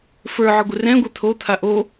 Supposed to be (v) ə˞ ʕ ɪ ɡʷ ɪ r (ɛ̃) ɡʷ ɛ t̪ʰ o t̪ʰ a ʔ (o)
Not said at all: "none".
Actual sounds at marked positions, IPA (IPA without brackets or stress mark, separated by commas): f, ɛ̃, o